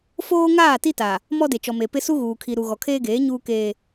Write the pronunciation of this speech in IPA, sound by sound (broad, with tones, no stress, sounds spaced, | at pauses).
f oː˦ ŋ aː˦˨ t i˦ t a˨ | m ɔ˦ d e˨ t͡ʃ ɔ˨ m e˨ p ɪ˦ s u˦ ɣ uː˨ kʰ i˨ ɾ u˨ ɣ ɔ˨ kʰ eː˦ ɡ eː˨˦ ɲ uː˦ k eː˦